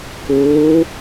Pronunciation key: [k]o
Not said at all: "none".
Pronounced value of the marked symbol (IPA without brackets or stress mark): k